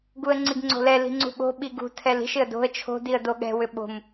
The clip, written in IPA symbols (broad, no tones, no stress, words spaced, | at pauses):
ɡuə̯ŋ͡ǀiɡŋ͡ǀo̤lɛ li̤ŋ͡ǀṳɓo̤ ɓiɡṳ tʰɛli̤ʃ ɪə̯do̤ə̯ t͡ʃʰo̤ diə̯doɠɛ̤ wʏɓo̤m